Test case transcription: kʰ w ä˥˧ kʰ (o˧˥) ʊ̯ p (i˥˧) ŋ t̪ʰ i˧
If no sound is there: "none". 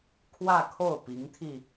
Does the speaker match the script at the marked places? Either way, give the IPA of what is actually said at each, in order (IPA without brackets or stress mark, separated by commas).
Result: o˥˩, i˧˥